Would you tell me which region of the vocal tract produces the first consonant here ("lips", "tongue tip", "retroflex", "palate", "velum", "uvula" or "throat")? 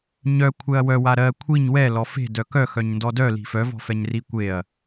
palate